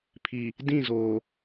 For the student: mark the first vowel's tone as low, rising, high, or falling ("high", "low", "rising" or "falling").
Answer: low